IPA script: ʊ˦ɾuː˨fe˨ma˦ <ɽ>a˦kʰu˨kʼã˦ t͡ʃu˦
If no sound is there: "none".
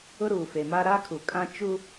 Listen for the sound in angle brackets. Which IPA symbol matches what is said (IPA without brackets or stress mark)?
ɾ